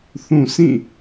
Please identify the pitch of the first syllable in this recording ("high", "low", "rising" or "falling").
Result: low